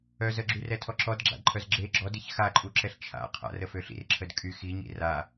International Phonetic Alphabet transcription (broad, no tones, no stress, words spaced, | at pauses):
œz əɡ͡ǁyrɛtʰɔ ǁɔdɡ͡ǁa̰dǃʰœz ɡ͡ǁe ɡ͡ǁɔdiç xaǃʼuǁɛɬ t͡ʃʰa̰ qʰa̰rəfø ɬḭrǁʰəd kʼy xiɲḭ ra